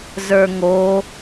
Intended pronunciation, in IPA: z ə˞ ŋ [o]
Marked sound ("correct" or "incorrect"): correct